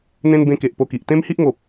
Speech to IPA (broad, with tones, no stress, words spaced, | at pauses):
n̪ẽ˦n bẽ˧ke˨ʔ po˧ki˨ʔ t̪ẽ˦mhi˦ʔŋo˨p̚